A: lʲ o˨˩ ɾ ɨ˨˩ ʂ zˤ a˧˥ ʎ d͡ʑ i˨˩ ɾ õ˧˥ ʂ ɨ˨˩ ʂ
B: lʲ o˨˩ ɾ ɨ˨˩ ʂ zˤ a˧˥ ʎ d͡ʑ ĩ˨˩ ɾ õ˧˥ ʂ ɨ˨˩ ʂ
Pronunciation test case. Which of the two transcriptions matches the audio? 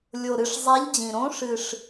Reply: B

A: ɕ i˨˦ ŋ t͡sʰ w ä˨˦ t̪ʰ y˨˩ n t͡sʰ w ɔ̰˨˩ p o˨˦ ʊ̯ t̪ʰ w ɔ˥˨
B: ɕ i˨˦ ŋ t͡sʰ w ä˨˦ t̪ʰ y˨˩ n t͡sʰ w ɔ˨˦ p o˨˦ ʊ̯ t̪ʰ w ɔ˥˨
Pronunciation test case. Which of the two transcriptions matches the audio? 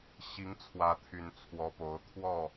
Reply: B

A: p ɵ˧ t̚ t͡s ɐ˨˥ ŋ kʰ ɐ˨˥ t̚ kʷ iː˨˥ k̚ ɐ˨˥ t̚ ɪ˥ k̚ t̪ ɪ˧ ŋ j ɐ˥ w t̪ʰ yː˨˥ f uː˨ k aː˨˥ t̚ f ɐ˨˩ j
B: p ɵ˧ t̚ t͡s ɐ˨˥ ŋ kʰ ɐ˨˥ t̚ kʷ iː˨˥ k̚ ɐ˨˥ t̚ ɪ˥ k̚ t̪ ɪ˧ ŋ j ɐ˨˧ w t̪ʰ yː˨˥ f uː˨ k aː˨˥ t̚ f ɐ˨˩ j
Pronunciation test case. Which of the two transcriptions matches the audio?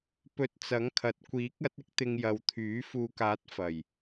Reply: B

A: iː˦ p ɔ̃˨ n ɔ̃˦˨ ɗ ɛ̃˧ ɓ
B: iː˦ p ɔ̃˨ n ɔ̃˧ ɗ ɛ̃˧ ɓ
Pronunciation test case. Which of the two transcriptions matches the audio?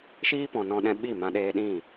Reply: B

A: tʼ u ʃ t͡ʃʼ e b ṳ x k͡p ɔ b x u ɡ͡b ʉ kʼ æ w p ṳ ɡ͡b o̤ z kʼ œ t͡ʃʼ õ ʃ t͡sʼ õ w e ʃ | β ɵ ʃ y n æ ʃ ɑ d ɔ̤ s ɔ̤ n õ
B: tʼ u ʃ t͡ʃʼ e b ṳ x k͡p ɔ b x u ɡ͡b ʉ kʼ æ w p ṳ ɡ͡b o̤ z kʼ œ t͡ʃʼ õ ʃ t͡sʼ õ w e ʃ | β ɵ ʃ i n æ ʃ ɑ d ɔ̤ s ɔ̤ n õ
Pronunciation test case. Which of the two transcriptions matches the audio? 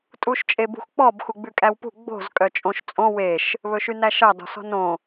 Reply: A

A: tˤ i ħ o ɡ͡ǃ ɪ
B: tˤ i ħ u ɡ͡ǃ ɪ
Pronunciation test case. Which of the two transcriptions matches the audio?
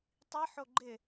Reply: A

